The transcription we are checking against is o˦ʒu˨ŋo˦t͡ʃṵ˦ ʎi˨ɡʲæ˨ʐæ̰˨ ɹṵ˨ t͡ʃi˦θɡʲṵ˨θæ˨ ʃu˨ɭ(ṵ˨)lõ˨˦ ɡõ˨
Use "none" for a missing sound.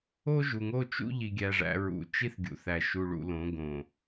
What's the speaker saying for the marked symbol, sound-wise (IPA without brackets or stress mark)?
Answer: ṵ˨